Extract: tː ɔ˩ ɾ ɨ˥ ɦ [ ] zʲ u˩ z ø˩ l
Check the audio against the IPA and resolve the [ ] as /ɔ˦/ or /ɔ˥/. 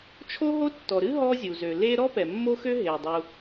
ɔ˦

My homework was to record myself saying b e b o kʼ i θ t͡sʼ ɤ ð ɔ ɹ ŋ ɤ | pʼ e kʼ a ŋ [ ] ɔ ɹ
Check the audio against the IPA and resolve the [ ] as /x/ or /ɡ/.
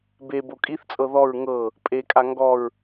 ɡ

